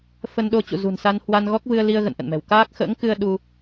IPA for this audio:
f ə˧ n ɗ o˧ t͡ɕ ṵ˧˨ z ṳ˨˩ n s a˧ n h w a˧ n ɣ ɔ˦˥ k̚ v ɨ˧ ə̯ l i˧ ə̯ ɣ ə̰˧˨ n ʔ ə̰˧˨ n m ɛ̤˨˩ w k aː˦˥ k̚ x ə̰ː˧˥ ŋ k ɨ˧ ə̯ ɗ u˧

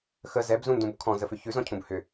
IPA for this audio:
x ə z ɛ b z ũ n d ũ b kʰ ɔ̃ z ə f ʏ ç ʉ z ɔ̃ cʰ ũ b h ʏ

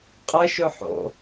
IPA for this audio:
qʼ ə ʃ ʊ ħ o̰

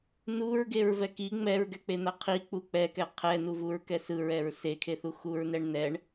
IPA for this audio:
n u ɹ ɡ e ɹ v ɛ k i ŋ͡m ɛ ɹ ɡ ɛ k͡p e n̪ a qʰ i k͡p u k͡p ɛ k ɛ qʰ ɛ n u v u ɹ k ɛ s ɯ ɹ ɛ ɹ s e kʰ e θ u x u ɹ n ɛ ɳ n ɛ ɳ

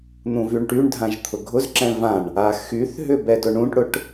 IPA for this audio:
n̪ ũ v y ɳ ʈ y ɳ dʱ ã ʒ t̪ʰ ʊ ɡʱ ʊ z ǁ ɛ̃ v ã ɳ | a x y θ ɦ ʏ b ɛ d ʊ ɳ ũ ʈ ɽ ʊ ʈ

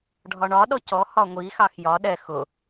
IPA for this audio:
ɖʱ ɒ ɳ ɒ ɗ ɔ c ɔ h ɒ ŋʷ i x ɑ x j ɒ ɗ ɛ x ʊ

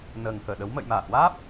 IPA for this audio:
n əː˨˩ ŋ k əː˧˩ ɗ ə˨˦ w m ə̰˧˨ j m aː˧˩ h w aː˦˥ p̚

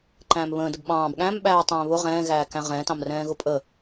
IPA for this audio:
ǃ æ̃ː m β ə̃ː d ə b ɓ ɑ̃ː b ɠ æ̃ m ɓ æː tˤ ɛ̃ː β ʊ ʁ ɛ̃ː ɣ æː k æ̃ ʁ ɛ̃ t ɑ̃ m r ɛ̃ː ɣ ʊ pʼ ə

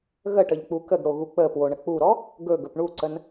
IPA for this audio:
ɣ ə ʈ ə ʎ k͡p u k ə ɡ ɽ o ɣ u k͡p ə p w o ɳ ə k͡p u ɾ ɔ | ɡ ɵ ɡ ɵ p ɳ u ǀ ə n

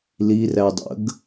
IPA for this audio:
l i r æ dˤ ə̰ ɡ

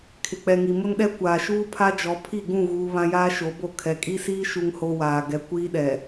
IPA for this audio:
kʰ ɪ˨ k͡p ɛ˨ ŋ i˨ m ʊ˦ n ɗ ɛ˦ kʷ aː˨ ʃ uː˦ pʰ a˦ d͡ʒ ɔ˨˦ pʰ i˦˨ ɡ ũ˦˨ ɣ uː˦ β ã˦ j aː˦ ʃ o˨˦ b o˦˨ kʰ ɛ˨ kʼ i˦ s iː˦ ʃ u˦ ŋ h o˦ w aː˨ ɡ ɛ˨ kʷ iː˦ ɗ ɛ˨

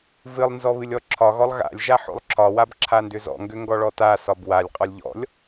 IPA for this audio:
v ɨ lˠ n z ɔ β ɨ lʲ ɔ ǁʰ ɒ ɣ ɔ lˠ ɣ a̰ lʲ ʒ a ħ o̰ lˠ ǁʰ ɒ w a b ǁʰ a n d ʏ z ɔ̰ ŋ ɡ ʏ ŋ ɡ ɔ ɭ ɔ t a s ɒ b w a lʲ qʼ ɒ lʲ ʎ ɔ̰ lʲ

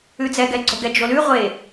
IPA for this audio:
ʉ d͡z ɛ ɡ ɛ ɡ͡ǀ o ɡ ɛ d͡ʒ o l ʉ ʁʷ e

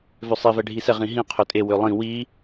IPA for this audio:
v ø sˤ i v ɛ ɖʱ i s ɛ ʁ ĩ ɦ ĩ qʰ ø tʼ e w ø lˠ ĩ w i

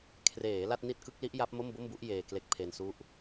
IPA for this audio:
kʰ r eː˩˦ l a˥˩ t̚ n i˥˩ t̚ k ɯ˦˥ k̚ l i˦˥ ʔ j a˦˥ p̚ m o˥˩ m b o˥˩ m b u˦˥ ʔ j eː˧ k l e˦˥ k̚ pʰ e˧ n s u˦˥ ʔ

